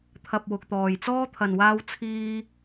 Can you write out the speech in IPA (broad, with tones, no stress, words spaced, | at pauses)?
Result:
t̪ʰɐ˨p̚ wʊ˨k̚t̪ɔː˨jt͡sɔː˥ t̪ʰɐ˨nwaː˧w t͡sʰiː˧